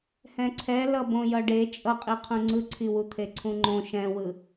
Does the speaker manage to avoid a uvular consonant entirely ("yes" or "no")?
no